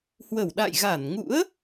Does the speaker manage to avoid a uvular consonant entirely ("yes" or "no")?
yes